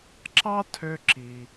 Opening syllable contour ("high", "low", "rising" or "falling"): high